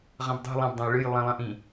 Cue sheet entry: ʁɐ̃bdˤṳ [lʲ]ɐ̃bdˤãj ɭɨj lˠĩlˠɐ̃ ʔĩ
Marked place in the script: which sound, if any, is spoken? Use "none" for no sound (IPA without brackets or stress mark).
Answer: lˠ